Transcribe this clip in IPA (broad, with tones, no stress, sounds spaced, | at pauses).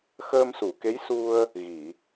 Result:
x əː˧ m s u˨˩˨ k e˧˥ j s u˧ ə̯ | ɣ i˨˩˨